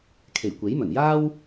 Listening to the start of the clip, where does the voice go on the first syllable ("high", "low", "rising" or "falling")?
low